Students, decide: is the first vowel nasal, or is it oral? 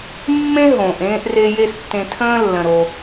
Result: nasal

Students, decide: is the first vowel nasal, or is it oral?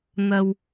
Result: oral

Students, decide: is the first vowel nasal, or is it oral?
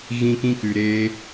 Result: nasal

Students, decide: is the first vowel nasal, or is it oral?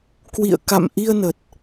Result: oral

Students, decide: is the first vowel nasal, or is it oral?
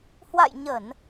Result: oral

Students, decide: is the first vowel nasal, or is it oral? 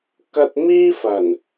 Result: oral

